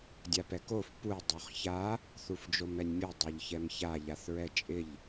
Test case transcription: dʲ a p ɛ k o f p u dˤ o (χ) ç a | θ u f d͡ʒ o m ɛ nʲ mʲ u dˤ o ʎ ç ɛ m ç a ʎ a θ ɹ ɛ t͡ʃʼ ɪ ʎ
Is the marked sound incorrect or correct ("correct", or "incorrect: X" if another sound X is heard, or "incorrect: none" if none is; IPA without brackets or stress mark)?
correct